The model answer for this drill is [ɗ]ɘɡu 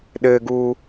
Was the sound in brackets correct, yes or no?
yes